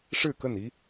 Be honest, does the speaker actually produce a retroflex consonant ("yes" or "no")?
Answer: yes